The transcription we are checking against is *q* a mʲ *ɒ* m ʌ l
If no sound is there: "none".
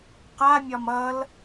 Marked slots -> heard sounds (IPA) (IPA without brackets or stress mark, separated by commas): q, ɒ